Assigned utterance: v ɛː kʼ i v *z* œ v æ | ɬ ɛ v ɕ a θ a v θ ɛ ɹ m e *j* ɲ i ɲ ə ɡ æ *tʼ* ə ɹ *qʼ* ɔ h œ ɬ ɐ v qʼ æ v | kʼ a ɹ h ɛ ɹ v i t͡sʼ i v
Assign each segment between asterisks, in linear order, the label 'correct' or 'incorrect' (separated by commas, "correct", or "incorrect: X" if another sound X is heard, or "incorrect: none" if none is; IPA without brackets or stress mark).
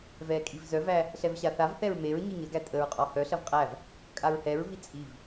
correct, incorrect: ɹ, correct, correct